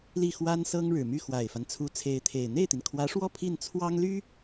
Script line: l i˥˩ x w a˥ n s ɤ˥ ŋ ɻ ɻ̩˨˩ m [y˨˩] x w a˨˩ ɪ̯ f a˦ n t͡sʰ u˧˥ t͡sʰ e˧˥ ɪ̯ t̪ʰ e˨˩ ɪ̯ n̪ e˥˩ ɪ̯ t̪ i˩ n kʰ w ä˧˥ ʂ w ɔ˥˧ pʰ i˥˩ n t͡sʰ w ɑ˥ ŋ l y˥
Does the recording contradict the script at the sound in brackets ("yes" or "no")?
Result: yes